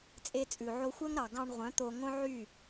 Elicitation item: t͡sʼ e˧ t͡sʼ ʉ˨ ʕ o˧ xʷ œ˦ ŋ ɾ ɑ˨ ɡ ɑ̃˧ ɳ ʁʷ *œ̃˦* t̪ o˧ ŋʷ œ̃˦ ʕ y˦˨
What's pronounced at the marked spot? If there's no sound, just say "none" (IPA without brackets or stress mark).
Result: œ̃˨˦